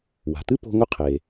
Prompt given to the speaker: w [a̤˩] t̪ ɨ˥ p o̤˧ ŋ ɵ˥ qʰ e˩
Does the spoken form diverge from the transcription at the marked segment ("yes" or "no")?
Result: no